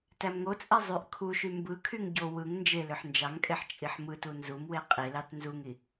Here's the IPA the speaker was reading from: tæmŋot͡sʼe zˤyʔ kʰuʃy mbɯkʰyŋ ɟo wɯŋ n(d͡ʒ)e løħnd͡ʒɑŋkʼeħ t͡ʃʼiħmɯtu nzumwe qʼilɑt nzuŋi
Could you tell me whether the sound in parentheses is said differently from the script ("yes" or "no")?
no